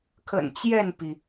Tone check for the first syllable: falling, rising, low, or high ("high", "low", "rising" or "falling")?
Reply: low